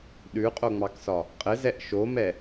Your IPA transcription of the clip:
ɗʉqʼoŋ͡mɑksɒ | qʼɘzɛʔ ʃomɛ

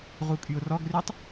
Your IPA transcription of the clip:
ʁukʼyʊ̯rɔɡrytˤ

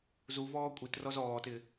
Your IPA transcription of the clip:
zuvɔː kʷʼitrɔz ɔːtɪ

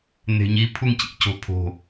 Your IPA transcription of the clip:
n̪e̤ɲi pʰuŋcḭ co̤pʰo̤

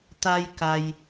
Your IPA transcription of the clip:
t̪a˧jka˩j

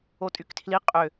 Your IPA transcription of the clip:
otʼyktʰli qʼø

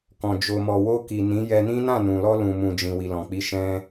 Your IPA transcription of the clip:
kɔ̃˨ d͡ʒo˨mɔ˨wo˧ki˨ nĩ˨˦jɛ˧nĩ˦ nã˦˨nũ˨lɔ˧ lũ˨mũ˨d͡ʒĩ˨ wi˨lɔ̃˨k͡pi˨˦ ʃɛ̃˦

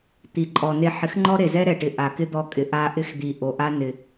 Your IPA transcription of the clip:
t̪i˨ǃʼɔ˨ne˧ ħɪ˨˦xŋ͡ǃɔ˦ ɾe˨zɛ˦ɾɛ˨ʈɪ˨ ʔa˨kɪ˦d̪ɔ˧kʼɪ˨ ʔa˧ʔɪ˦xd̪i˨ ʔo˨ʔa˦ nɪ˨

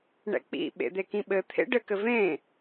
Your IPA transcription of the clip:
ɳɛ̰k͡pḭ ɓḛd̪ekĩɓɘ t̪ʰḛɖɘ kɘvẽ

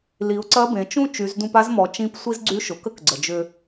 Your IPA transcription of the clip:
li˩˧ʊ̯ǀɐ˧˥bẽ˩˧ t͡ʃũ˥ t͡ʃy˩˧zdũ˧pa˧˥z mɔ˩˧t͡ʃĩ˧˥p sʷi˥z ɡ͡ǀy˧˥ʃʊ˩ kə˥kɡ͡ǀə˩d͡ʒʏ˧

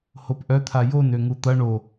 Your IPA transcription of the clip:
hopʔœt̪ʰa jon øŋut̪ɐ ɳo

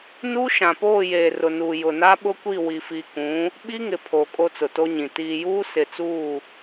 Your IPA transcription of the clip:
nuː˦ʃã˨poː˦˨ jeː˨rʊ˨nuː˨ jʊ˨na˦ɓʊ˦kʷi˦˨ wi˨fi˨kũ˨˦ | ɓi˦ŋɪ˨ pʰoː˨ kʼo˦t͡sʊ˨to˦ɲĩ˨ tiː˨juː˦ sɪ˨t͡suː˦˨

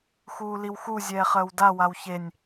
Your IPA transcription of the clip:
xuːliwxu zʲɛːχəːwda wawçenʲ

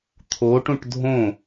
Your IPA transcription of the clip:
t̪ʰoʈũʈ dʱõ

